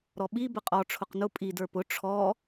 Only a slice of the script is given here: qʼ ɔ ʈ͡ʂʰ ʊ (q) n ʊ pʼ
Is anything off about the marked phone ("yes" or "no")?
no